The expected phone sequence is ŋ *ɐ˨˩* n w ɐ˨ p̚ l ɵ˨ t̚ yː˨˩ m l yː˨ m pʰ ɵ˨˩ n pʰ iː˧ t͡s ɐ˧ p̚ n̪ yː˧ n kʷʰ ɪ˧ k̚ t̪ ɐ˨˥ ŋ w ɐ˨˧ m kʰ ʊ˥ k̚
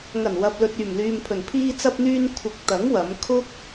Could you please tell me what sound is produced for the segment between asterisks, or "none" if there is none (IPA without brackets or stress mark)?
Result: ɐ˨˩